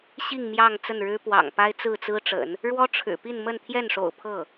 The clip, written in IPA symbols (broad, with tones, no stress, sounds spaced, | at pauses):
ɕ i˥˧ ŋ m j ɑ˥˧ ŋ t͡s ə˥˩ n ɻ ɻ̩˥ p w ɑ̰˨˩ ŋ p a˥ ɪ̯ t͡s ɹ̩˥˩ t͡s ɹ̩˥ ʈ͡ʂ ə̰˨˩˦ n | ɻ w ɔ˥ ʈ͡ʂʰ ɻ̩˨˩ p i˥˧ n m ə˥˧ n t̪ʰ j ɛ˥˩ n ʂ o̰˨˩ ʊ̯ pʰ ɤ˥˩